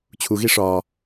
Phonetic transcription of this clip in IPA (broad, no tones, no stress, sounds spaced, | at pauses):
t͡ɕʰ u ɣ i ʂ ɒ